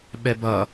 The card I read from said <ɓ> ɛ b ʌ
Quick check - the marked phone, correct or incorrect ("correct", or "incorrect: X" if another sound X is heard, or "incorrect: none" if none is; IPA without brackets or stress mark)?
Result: correct